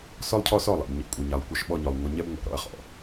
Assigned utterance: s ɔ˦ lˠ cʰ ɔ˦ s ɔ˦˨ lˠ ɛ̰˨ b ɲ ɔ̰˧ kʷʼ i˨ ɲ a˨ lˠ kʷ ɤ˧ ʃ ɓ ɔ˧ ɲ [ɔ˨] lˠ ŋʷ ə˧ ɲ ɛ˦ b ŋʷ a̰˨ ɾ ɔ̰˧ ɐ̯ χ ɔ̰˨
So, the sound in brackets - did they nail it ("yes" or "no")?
yes